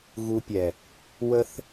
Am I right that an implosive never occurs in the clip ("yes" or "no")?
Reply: yes